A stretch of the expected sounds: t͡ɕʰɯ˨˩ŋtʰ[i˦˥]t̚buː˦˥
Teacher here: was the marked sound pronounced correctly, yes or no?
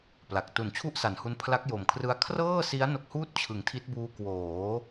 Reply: yes